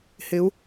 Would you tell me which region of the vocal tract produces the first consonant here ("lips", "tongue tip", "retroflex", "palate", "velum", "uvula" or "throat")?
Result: throat